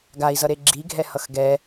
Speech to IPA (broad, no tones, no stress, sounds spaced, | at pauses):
ɡ a i̯ z ʌ ɾ e ɡ͡ǁ i ɡʱ ɛ h ʌ x ɡ ɛ